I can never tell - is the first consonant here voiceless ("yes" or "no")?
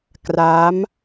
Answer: yes